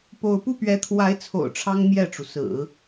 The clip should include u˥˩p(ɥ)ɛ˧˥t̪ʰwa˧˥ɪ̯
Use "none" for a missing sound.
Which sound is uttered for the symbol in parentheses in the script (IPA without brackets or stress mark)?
ɥ